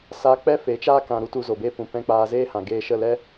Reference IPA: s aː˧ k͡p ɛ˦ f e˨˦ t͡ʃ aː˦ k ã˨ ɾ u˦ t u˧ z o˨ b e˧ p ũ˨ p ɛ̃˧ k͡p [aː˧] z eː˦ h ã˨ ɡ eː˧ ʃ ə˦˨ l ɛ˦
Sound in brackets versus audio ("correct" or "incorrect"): correct